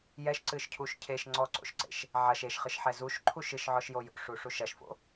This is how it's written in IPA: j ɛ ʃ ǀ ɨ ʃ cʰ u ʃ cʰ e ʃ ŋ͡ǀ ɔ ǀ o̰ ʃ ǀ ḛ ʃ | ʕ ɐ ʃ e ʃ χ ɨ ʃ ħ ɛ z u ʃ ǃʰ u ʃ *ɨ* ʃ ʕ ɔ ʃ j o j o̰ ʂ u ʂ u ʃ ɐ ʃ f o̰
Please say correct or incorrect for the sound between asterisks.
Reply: correct